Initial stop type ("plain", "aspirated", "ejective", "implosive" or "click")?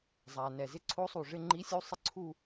click